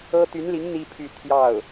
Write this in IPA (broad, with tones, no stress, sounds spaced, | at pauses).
ɤ˥ t̪ y˧˥ n l i˧˥ ŋ n̪ i˥ pʰ y˥˧ t̪ʰ j ɑ˥˩ ʊ̯